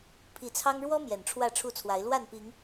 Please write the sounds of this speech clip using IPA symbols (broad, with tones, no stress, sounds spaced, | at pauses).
pʰ i˨˦ t͡sʰ ɑ˦ ŋ ɻ w ɔ˦ m j ɛ˨˩ n ʈ͡ʂʰ w ä˥˨ ʈ͡ʂʰ u˥˨ t͡sʰ w a˨˦ ɪ̯ l w a˥˨ n p i˨˦ ŋ